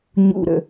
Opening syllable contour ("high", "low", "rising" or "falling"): low